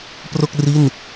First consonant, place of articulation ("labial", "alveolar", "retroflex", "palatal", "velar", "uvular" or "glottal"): labial